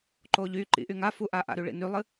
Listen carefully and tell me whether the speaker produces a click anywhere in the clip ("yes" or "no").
yes